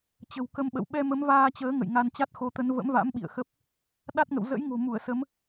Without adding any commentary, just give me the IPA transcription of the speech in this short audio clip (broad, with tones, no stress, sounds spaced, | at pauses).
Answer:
t͡ɕ ə̤˨˩ w k ə˧ m ɓ ə̰˧˨ w ɓ ɛ˧ m ə˨˦ m v aː˧ t͡ɕ əː˨˦ ŋ ə̰˧˨ j ŋ a˧ n t͡ɕ a˦˥ t̚ x o˧ t̪ ə˨˦ n v ə̰˧˥ m v a̰˧˥ m ɓ ḭ˧˨ ə̯ x ə˦˥ p̚ | ɗ a˦˥ t̚ ŋ ə̰˧˨ w z ə̰˧˥ j ŋ o̤˨˩ m u˧˩ ə̯ s ə˨˦ m